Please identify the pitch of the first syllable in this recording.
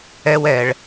high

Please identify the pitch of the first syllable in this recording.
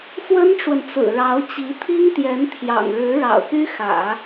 high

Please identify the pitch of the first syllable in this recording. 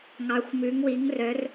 rising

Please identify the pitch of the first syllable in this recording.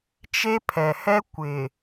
high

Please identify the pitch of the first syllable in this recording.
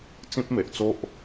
high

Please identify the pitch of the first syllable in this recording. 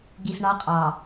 low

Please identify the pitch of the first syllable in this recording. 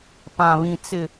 low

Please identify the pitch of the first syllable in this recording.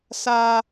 high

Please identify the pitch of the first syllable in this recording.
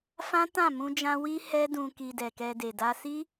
high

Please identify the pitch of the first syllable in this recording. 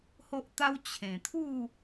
high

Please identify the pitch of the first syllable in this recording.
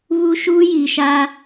high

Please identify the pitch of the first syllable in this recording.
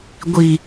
low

